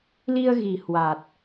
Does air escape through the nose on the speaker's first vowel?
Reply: no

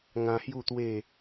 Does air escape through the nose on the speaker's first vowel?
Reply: yes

